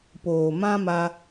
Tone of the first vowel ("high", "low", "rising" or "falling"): low